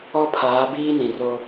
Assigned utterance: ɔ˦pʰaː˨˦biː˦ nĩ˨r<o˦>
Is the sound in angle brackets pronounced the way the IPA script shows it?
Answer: yes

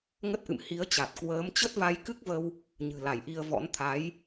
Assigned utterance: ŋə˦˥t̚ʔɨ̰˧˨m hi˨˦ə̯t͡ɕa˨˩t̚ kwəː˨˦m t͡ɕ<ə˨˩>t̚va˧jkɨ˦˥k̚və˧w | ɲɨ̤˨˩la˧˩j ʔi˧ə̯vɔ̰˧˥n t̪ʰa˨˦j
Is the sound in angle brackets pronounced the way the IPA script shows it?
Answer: no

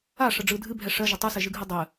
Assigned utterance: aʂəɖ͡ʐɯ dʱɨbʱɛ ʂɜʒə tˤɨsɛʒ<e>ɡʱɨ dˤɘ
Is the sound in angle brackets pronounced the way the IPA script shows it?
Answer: no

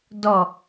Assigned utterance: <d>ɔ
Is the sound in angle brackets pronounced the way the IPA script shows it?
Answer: yes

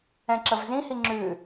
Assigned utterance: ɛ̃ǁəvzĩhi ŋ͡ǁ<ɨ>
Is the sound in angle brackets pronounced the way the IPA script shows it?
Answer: no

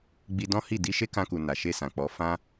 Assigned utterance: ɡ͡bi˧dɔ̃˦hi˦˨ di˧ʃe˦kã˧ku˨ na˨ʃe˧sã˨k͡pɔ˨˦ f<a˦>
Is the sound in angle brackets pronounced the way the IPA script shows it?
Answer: no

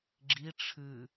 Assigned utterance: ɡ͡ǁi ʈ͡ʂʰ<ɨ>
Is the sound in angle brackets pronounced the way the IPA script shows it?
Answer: yes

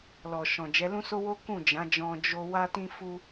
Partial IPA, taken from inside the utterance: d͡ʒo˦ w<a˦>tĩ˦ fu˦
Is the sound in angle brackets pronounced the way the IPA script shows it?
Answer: yes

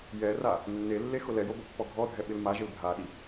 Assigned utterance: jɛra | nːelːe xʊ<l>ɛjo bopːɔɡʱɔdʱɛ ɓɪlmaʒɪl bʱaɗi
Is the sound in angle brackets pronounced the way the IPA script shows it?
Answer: yes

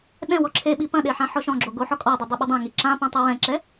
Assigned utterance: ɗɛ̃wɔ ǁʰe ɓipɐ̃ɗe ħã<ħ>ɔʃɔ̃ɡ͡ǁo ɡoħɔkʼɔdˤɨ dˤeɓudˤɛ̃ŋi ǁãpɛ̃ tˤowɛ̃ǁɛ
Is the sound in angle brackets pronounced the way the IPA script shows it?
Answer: yes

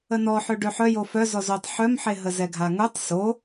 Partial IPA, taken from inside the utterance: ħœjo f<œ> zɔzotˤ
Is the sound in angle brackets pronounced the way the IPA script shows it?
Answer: yes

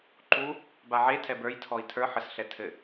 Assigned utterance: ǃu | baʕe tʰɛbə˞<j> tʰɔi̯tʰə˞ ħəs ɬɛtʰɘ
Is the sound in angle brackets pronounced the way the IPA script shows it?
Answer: yes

